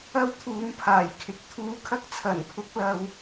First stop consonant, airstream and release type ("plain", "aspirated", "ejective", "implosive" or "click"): aspirated